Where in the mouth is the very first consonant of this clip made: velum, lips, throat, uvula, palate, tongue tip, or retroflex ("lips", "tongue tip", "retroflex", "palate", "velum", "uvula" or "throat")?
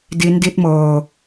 tongue tip